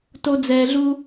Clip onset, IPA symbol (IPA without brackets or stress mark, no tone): t